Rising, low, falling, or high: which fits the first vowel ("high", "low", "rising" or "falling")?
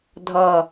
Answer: low